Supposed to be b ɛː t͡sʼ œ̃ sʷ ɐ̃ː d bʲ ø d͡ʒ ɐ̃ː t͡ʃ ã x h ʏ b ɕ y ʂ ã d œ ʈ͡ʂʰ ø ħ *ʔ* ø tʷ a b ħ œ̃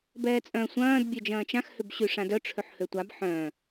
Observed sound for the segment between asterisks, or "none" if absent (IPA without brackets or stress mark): h